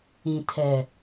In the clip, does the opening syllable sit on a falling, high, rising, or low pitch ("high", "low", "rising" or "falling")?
low